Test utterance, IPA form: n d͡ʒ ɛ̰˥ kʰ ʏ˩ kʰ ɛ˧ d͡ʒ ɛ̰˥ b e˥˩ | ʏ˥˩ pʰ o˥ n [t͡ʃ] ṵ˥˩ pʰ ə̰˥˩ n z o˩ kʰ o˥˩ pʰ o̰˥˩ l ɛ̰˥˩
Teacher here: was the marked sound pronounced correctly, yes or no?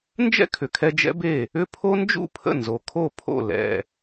no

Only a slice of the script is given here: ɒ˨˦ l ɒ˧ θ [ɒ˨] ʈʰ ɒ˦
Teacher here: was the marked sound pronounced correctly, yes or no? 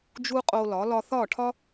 no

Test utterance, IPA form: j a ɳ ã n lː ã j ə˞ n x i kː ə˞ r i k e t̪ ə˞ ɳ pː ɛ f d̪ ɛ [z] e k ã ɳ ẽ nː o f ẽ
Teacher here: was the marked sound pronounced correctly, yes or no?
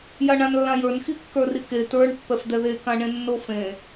no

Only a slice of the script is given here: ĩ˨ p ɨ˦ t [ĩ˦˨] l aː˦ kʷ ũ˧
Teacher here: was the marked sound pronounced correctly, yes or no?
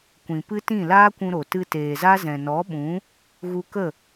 yes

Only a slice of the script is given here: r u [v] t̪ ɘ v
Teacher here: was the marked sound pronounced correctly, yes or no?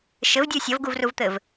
yes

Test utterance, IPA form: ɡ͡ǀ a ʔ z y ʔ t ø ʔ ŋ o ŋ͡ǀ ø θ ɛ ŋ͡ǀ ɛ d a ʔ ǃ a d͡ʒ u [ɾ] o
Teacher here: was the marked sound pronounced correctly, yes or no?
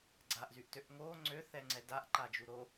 yes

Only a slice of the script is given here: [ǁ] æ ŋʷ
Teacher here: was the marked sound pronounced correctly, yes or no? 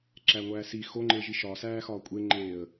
yes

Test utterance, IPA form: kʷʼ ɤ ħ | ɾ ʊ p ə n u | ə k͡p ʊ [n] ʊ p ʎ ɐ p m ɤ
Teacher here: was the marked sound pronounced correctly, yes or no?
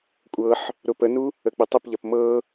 no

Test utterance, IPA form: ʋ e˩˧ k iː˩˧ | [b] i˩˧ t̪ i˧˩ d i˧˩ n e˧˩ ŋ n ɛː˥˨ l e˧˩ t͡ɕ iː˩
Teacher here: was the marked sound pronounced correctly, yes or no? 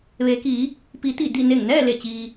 no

